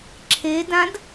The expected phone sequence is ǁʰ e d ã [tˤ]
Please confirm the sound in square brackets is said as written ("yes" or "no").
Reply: no